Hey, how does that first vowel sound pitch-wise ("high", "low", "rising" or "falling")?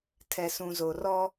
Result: low